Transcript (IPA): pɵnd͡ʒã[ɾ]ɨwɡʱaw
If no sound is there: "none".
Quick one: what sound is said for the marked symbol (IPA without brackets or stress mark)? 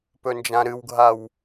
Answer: ɾ